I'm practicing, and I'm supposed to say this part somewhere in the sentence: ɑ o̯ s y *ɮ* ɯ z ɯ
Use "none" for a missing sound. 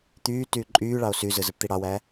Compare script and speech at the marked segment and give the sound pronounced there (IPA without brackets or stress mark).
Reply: z